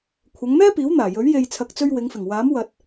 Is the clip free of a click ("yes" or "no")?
yes